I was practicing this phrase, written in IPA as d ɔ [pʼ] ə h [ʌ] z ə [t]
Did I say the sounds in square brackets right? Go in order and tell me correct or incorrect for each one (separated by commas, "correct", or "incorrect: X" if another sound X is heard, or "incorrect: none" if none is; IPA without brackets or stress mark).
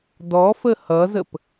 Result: incorrect: f, correct, incorrect: p